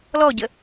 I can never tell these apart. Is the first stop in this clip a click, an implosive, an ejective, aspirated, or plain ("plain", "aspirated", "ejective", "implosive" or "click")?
plain